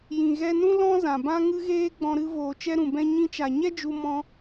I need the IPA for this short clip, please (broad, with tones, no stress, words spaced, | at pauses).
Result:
jĩ˨ɣɛ˧nũ˦ lɔ̃˦zã˨bã˦ ŋɨ˧ɣeː˧ ɡ͡bɔ̃˧ɾɨ˧ voː˨t͡ʃɛ˧ ɾũ˨bɛ̃˧ ɲĩ˧t͡ʃa˨ ɲɛ˦d͡ʒu˧ mɔ̃˧